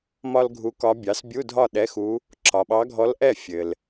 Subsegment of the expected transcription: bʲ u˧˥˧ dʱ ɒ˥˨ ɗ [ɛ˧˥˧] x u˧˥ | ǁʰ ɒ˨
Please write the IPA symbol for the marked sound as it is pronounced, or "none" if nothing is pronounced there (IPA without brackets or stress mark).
ɛ˧˥˧